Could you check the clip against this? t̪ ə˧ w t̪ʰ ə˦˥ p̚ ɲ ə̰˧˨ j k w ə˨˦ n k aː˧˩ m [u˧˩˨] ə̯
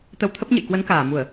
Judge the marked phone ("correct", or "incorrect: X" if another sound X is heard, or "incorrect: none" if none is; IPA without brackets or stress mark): correct